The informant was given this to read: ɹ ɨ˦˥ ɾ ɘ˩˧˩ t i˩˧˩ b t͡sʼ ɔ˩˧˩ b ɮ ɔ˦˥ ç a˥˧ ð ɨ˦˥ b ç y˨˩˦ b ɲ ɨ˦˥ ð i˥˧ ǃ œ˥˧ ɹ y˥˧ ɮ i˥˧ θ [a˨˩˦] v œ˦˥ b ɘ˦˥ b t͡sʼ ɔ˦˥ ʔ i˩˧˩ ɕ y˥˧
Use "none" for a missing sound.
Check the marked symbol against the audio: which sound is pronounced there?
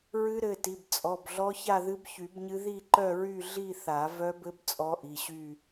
a˨˩˦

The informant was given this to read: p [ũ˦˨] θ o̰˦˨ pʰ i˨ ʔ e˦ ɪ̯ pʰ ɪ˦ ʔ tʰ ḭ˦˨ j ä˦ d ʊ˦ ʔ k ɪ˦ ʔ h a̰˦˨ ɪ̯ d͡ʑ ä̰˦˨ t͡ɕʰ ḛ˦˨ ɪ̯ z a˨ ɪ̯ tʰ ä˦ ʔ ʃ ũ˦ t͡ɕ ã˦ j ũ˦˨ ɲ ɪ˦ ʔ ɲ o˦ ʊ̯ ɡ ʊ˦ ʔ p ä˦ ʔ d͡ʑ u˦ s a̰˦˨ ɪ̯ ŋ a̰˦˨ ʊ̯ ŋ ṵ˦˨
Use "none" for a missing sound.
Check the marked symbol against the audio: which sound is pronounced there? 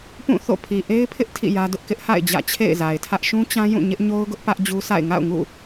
ũ˦˨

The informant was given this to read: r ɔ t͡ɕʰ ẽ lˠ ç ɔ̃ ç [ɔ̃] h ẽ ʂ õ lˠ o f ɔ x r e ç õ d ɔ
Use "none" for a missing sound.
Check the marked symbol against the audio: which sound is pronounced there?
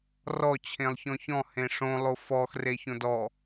ɔ̃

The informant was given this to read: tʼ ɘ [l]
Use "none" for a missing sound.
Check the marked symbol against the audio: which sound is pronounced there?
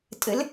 l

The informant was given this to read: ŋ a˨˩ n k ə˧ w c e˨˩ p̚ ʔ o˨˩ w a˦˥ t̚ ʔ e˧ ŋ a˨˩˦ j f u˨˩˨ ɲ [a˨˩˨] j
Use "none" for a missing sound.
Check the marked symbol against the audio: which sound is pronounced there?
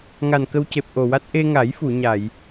a˨˩˨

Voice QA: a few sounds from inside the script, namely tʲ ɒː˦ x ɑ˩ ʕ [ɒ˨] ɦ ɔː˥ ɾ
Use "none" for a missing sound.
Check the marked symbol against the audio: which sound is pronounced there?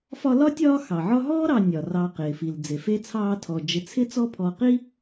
ɒ˦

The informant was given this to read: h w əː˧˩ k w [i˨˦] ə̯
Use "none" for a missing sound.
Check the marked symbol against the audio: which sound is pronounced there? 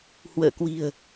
i̤˨˩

